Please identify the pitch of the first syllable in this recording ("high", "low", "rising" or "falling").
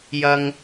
low